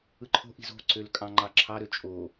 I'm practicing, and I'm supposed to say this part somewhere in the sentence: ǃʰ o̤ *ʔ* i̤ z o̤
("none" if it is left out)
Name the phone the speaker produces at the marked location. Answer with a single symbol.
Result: ʔ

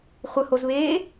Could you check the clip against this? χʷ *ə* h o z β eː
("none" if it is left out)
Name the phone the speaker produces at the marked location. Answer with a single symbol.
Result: ə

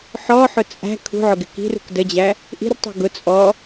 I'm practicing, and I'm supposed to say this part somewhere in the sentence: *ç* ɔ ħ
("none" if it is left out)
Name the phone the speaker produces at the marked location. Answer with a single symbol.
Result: ħ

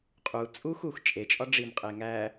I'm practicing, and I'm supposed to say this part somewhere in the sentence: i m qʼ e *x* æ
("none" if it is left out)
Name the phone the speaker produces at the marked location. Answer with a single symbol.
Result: ŋ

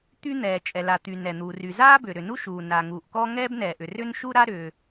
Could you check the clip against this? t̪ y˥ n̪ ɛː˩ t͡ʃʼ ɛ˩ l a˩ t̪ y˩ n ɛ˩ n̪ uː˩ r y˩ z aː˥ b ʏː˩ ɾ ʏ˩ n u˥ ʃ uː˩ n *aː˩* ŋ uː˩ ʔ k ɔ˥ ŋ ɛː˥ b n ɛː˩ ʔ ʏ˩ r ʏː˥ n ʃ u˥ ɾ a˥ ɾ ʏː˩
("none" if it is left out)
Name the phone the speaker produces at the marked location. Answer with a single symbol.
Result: aː˩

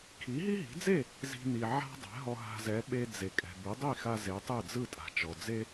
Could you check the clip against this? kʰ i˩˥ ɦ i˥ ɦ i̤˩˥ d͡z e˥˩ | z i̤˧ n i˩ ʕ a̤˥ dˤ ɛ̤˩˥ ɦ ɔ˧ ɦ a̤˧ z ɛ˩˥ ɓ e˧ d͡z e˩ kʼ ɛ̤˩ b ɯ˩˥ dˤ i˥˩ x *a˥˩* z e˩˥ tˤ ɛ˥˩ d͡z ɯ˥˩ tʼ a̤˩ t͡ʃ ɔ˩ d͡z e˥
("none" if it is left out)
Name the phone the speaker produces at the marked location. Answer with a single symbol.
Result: a˧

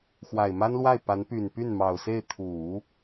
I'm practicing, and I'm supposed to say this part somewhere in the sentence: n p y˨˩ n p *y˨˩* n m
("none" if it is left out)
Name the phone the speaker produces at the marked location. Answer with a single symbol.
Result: y˥˩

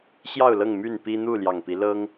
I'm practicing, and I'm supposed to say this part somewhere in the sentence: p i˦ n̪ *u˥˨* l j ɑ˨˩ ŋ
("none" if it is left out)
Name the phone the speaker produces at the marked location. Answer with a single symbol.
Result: u˥˨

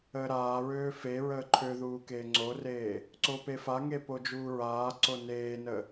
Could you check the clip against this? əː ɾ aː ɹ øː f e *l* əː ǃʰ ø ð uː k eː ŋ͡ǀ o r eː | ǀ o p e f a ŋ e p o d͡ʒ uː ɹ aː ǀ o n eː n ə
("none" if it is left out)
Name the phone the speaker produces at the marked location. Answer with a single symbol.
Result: ɹ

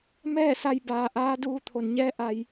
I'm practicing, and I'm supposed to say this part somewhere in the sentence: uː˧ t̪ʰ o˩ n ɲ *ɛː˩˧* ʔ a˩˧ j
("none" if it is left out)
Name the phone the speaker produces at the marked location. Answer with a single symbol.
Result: ɛː˧˥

